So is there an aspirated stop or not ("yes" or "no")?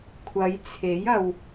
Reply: yes